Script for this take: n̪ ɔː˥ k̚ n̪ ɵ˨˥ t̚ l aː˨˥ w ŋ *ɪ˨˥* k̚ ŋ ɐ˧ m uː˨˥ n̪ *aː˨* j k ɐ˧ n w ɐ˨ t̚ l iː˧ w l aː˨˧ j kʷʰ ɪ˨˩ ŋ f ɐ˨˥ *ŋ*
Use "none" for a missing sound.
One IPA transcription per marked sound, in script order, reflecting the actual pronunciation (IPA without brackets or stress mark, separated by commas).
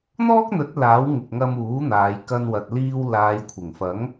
ɪ˨, aː˨˧, ŋ